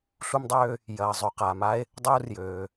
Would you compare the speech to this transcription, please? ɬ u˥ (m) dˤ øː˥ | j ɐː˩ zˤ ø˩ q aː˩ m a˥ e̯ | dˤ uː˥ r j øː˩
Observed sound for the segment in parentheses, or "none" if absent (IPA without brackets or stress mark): m